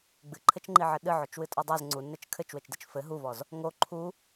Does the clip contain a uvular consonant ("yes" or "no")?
no